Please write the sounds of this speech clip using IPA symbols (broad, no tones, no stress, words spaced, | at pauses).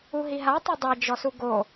uɦiɦa tˤodˤe d͡ʒɔsuɡo